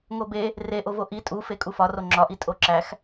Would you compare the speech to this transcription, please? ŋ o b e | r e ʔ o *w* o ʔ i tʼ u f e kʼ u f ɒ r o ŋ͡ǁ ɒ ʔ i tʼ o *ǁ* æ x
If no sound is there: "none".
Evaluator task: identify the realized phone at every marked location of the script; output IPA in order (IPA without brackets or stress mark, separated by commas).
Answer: v, ǁ